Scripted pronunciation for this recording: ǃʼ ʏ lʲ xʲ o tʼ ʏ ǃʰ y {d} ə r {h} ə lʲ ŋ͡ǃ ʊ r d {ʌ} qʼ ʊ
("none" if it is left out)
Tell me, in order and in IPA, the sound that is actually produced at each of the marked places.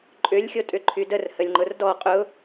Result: d, h, ɔ

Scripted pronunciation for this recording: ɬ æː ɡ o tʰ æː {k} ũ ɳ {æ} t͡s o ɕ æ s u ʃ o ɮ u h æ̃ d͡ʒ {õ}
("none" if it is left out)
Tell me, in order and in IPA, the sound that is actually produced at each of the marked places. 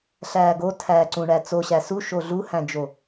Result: ǀ, æ, o

